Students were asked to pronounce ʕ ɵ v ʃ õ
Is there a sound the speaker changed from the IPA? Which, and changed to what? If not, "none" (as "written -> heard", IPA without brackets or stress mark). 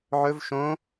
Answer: none